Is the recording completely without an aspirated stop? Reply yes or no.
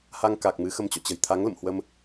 no